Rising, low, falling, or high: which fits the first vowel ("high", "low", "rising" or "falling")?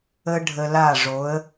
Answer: high